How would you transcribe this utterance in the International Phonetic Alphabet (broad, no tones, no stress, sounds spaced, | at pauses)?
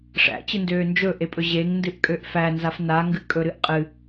ʂ æ̰ t͡ɕ ɨ n d øː n d͡ʒ ɵ ʔ e pʼ ɵ ʑ e ŋ n d ɨ ʔ kʼ ø ʔ f æ n z a f n a ŋ ɡ ɨ kʼ ɵ ɾ ɨ ʔ qʼ ɨ